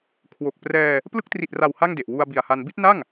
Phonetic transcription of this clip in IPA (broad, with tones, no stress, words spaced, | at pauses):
kʰwo˨˩k̚ prɛː˧ | plɯ˦˥k̚tri˨˩t̚ra˨˩w ha˥˩ŋde˨˩ʔ wu˧a̯bi˨˩a̯ha˧n bi˦˥t̚na˥˩ŋ